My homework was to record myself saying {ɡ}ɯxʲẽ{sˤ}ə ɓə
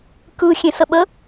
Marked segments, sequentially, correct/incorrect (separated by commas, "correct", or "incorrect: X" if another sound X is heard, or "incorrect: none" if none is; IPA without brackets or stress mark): incorrect: k, incorrect: s